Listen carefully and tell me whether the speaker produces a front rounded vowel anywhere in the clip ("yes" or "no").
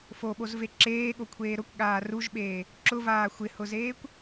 no